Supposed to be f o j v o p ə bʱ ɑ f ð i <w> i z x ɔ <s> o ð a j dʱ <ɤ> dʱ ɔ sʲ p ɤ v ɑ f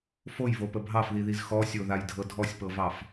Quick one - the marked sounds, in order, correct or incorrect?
incorrect, incorrect, correct

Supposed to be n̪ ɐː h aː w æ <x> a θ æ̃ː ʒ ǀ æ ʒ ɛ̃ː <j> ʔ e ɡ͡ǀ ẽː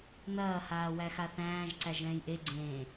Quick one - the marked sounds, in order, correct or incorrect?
correct, correct

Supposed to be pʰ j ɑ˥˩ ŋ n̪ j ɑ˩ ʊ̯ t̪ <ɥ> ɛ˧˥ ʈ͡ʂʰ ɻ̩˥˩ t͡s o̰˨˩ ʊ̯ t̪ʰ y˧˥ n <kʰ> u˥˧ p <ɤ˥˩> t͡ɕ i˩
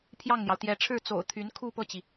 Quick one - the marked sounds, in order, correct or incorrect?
incorrect, correct, correct

